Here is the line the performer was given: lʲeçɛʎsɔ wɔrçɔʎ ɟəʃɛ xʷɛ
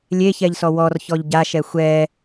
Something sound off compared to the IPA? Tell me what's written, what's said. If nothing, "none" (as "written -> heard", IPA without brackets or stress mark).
ə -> a